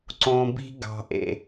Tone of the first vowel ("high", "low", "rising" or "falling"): low